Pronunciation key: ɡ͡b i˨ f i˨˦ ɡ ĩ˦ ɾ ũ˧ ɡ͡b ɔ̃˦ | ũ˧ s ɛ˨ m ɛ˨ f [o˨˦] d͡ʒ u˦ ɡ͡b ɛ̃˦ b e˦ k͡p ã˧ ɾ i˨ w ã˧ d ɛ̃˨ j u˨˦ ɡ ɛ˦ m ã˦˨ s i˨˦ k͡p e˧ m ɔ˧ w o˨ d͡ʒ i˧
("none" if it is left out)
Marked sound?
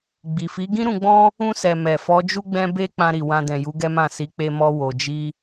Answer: ɔ˨˦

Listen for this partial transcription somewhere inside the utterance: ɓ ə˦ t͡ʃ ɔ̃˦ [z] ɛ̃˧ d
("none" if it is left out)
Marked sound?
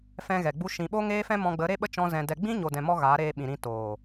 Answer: z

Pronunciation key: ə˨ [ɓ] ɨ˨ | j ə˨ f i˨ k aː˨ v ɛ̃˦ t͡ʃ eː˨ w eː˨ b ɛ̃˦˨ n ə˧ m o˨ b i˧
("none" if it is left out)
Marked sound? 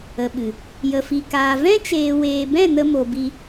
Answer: ɓ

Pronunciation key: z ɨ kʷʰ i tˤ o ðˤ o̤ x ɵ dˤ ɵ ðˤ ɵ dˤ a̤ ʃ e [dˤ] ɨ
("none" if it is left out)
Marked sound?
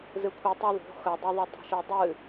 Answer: dˤ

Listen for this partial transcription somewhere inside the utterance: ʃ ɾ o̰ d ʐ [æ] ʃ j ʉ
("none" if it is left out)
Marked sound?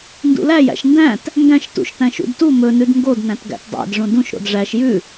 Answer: æ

